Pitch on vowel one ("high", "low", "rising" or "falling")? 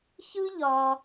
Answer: high